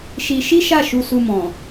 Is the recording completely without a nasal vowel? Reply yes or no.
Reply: no